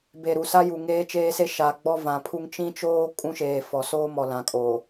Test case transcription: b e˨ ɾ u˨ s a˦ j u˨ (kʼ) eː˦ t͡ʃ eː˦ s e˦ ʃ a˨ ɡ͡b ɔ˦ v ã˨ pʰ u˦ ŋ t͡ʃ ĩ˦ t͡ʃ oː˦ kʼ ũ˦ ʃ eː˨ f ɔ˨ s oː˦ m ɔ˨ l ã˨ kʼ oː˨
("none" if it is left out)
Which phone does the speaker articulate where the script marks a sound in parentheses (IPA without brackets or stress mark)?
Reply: ŋ